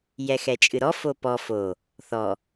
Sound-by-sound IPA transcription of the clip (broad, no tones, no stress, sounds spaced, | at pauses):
j ɛ x ɛ t͡ʃʼ ɨ ɾ ɔ f o p ɔ f o | θ ɔ